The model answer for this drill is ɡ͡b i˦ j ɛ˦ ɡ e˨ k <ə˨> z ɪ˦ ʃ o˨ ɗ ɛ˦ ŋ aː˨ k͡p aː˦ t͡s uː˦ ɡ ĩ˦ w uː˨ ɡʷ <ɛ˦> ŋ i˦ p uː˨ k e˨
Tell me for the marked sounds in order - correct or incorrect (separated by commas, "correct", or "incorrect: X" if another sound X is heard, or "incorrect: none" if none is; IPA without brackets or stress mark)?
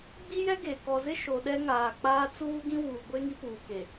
incorrect: ɔ˨, incorrect: e˦